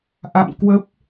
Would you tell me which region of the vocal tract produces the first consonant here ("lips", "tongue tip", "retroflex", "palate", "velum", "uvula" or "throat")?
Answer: throat